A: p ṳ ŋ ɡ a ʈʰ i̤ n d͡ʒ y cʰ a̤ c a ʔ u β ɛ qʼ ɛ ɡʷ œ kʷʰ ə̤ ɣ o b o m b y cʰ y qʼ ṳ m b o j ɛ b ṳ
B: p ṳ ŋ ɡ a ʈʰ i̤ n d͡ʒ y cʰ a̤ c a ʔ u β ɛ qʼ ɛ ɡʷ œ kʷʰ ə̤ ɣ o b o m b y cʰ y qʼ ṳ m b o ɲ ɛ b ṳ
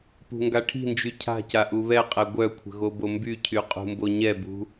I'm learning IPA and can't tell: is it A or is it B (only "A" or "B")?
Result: B